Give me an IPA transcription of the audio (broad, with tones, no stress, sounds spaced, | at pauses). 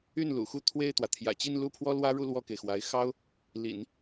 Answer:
y˥˩ n l ṵ˨˩ x u˥˧ t̪ʰ w e˥˩ ɪ̯ t̪ w ä˩ t̪ʰ j ä̰˨˩ t͡ɕ i˥˧ n l u˥˩ pʰ w ɔ˥ l w ä˥ ɻ u˥˧ l w ɔ˥˩ k e˩ ɪ̯ x w a˧˥ ɪ̯ x ɑ˥ ʊ̯ | l ḭ˨˩˦ n